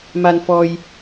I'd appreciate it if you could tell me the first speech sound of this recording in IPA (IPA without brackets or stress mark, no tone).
m